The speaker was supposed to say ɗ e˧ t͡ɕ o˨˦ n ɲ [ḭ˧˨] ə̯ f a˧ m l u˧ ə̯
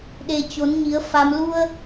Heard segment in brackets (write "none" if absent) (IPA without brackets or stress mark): i˨˦